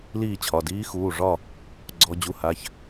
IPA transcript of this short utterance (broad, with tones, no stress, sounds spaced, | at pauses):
l iː˥˨ t͡ɕʰ ɒ˩˧˩ d iː˦˥ x uː˩˧˩ ʐ ɒ˥˨ | ɡ͡ǀ ɔ˦˥ d͡ʑ u˧˥˧ h a˧˥˧ ç